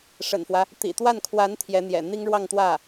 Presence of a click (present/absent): absent